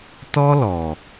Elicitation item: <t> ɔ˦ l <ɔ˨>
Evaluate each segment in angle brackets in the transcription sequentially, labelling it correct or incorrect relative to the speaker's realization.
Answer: correct, correct

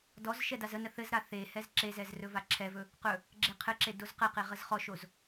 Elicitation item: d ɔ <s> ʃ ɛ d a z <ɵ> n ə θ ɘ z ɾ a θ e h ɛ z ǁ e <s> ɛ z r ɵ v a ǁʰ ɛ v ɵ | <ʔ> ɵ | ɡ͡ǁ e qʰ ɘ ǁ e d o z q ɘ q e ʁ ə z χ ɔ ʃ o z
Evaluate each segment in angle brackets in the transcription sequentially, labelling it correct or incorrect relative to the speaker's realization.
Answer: incorrect: z, incorrect: ə, incorrect: z, incorrect: q

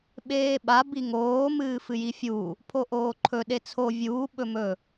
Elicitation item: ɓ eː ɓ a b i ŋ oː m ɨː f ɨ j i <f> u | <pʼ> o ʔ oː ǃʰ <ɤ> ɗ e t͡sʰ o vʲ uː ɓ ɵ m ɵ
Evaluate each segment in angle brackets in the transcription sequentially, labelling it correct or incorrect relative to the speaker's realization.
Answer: incorrect: fʲ, incorrect: pʰ, incorrect: ɵ

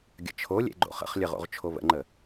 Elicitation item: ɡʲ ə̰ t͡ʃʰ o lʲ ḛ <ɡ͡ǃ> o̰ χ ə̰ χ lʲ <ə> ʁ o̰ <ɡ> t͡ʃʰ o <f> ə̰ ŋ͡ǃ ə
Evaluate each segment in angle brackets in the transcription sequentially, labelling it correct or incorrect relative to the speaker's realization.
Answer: correct, correct, incorrect: ʁ, incorrect: β

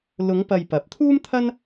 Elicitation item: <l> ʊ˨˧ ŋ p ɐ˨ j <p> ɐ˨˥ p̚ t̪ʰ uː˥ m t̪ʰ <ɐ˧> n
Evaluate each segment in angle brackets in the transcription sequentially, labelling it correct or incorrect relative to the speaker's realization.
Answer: correct, correct, incorrect: ɐ˥

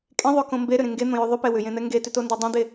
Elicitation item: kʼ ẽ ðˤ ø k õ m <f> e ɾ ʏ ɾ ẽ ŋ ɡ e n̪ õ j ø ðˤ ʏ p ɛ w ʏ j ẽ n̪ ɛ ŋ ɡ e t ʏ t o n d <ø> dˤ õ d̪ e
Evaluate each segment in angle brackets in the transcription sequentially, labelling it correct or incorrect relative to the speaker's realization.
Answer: incorrect: b, incorrect: ɛ

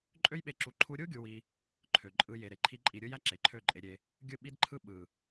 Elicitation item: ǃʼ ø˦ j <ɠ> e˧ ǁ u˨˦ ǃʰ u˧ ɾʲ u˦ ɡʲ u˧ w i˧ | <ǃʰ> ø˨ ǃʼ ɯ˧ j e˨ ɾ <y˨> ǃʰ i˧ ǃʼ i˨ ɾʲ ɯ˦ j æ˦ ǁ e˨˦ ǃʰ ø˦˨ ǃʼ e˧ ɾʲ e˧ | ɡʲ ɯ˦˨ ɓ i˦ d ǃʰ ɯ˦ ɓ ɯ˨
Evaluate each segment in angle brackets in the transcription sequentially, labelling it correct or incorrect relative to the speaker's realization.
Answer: incorrect: ɓ, correct, incorrect: e˨

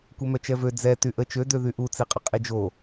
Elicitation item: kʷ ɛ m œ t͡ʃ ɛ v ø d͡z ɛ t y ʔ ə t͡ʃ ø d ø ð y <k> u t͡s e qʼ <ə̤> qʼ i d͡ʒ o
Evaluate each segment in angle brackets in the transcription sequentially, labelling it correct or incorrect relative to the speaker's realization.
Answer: incorrect: ʔ, incorrect: ə

